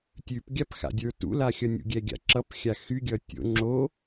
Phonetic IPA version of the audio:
tʲ ʉ p ɡʲ a p x a̰ dʲ ə˞ t ṵ l a xʲ ʌ nʲ ṵ ɡʲ ɛ ɡʲ a̰ ǁ ʌ p xʲ a x y ɡʲ ʌ tʲ o̰ ŋ͡ǁ o

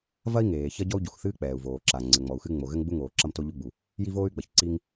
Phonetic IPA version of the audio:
v ɐ˥ i̯ ŋ eː˩ ç ɐ˥ ɟ ɔ˥ u̯ ɟ u˩ x θ ɨː˥ k͡p ɛː˩ u̯ v oː˩ ǁ a˩ ŋ͡ǀ ɘ˩ ŋ͡m ɔ˩ u̯ x ɨ˥ ŋ͡m o˩ ɣ ɘ˥ ŋ ɡ͡b u˥ ŋ oː˩ ǁ ɐ˥ m t o˥ ʎ u˥ ɡ͡b u˩ | j i˥ v oː˥ y̯ ɡ͡b ɐ˩ ç ǀ i˥ ŋ

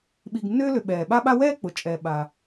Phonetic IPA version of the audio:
ɓ i˨ ɡ nː ʏː˦ l ʏ˨ ɓ ɛː˩ ɓ a˥ ɓ a˥ w ɛː˥ k͡p ʊ˩ t͡ʃʼ ɛː˩ ɓ a˩

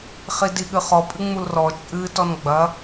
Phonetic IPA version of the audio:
χ i d i ɠ ɨ χ ɔ pʼ ɨ ŋ͡m u l r ɔ t͡ʃʼ ɨ t ɔ n ɡ͡b ɐ

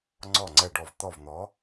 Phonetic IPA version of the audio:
ŋ͡ǀ ɔ˧˩ ŋ͡ǀ ɛ˧˩ ɖ ɔ˧˩ v t̪ ɔ˥˩ v n̪ ɔ˨˥

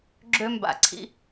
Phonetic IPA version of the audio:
ɡ͡ǁ ø˦ m b a̰˧ ǀʰ ḭ˦

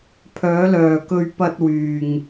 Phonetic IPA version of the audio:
pʰ œː˨˧ l œː˨ k ɵ˨ ɥ p ɐ˧ t̚ w yː˨ ŋ

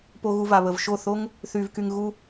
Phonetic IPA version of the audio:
p o˧ ɣ u˧ v a˨ β ə˨ v ʃ o˦˨ θ o˦ ŋ | θ y˧ v k y˧ ŋ ɣ u˦

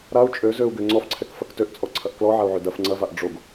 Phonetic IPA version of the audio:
ɾ a u̯ t͡ʃʼ ø z ø u̯ ɡ ø ŋ͡ǀ ɔ f ǀʰ ɛ k f ɐ k t ø ʔ t͡sʼ ɔ ǀʰ ɐ ʔ k l ɔ ʕ a u̯ ʕ ø d ɐ f ŋ͡ǀ ɐ v a ʔ ɖ͡ʐ o ɡ

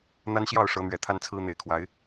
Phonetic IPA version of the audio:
n̪ a˦ n ɕ j ɑ˥˨ ʊ̯ ʂ ɤ˨˦ n̪ ɥ ɛ˨˩ t̪ʰ a˦ n t͡sʰ ɹ̩˦ n̪ e˨˩ ɪ̯ kʰ w a˨˦ ɪ̯

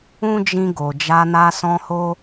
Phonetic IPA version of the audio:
ũ˦ d͡ʒ ĩ˧ ɡ o˨ d͡ʒ a˧ n a˧ s ɔ̃˧ h o˦

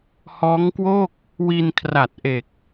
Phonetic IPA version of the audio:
h ɔː˦˥ ŋ k w o˥˩ k̚ | w i˧ n kʰ r a˨˩ t̚ ʔ e˨˩ k̚

